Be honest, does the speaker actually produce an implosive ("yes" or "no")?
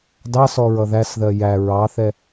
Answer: no